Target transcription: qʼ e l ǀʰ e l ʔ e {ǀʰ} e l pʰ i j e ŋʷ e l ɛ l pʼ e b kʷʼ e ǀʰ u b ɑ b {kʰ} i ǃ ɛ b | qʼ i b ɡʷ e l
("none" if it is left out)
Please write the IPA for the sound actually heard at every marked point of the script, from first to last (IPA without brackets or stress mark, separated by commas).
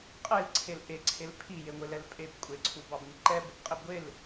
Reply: ǀʰ, ŋ